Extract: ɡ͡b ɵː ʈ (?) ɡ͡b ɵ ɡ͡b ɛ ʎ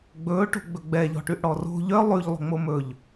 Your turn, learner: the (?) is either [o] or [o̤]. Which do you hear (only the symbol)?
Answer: o̤